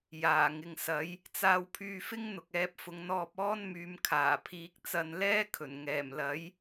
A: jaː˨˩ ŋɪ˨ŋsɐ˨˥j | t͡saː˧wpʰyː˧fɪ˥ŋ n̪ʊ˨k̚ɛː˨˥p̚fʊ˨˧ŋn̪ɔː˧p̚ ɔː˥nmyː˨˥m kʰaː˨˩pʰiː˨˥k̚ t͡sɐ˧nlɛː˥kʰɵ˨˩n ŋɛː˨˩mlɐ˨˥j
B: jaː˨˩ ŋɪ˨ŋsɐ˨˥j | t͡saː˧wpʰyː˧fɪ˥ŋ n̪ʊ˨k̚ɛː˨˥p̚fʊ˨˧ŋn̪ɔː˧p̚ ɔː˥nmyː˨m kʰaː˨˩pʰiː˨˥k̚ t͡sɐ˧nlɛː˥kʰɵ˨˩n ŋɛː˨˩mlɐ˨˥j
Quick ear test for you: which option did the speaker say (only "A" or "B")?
B